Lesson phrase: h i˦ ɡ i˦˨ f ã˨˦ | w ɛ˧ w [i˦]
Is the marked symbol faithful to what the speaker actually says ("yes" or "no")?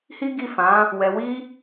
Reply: yes